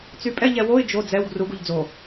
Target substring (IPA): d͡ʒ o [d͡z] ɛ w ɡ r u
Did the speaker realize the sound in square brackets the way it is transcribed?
yes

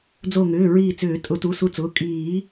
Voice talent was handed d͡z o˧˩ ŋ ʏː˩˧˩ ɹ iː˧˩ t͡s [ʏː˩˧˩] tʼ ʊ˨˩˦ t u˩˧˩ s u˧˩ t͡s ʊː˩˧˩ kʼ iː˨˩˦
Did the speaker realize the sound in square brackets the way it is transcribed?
no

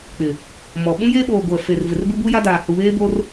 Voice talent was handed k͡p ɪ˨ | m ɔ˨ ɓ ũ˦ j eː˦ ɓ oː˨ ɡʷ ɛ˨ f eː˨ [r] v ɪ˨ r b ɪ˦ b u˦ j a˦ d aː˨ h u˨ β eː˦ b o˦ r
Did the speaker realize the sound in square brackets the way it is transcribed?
yes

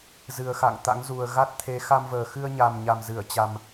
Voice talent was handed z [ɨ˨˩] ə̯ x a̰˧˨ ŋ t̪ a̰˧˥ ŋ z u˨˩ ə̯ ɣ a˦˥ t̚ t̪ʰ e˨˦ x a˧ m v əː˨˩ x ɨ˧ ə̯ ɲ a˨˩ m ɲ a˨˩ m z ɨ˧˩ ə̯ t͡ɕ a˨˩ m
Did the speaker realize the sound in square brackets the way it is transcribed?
yes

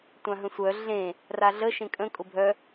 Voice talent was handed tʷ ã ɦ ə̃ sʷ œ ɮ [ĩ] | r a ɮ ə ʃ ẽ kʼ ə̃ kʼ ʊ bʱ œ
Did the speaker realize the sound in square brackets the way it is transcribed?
no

